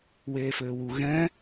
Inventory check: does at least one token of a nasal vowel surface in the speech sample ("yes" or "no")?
yes